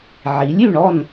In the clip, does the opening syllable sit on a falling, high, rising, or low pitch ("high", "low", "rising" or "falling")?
rising